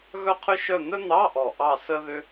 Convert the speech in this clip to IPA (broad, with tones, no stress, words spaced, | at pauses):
ɣœ˥qʰʏ˥ʃœ˥˧ n̪œ˥n̪ɑ˧˥˧ʔɔ˨˩ ʔɑ˥˧sə˥ðʏ˥